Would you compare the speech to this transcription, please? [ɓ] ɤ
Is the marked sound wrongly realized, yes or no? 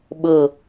no